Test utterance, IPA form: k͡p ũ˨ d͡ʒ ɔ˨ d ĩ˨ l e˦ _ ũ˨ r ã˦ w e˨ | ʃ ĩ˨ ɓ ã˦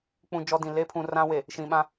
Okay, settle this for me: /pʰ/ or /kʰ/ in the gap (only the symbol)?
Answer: pʰ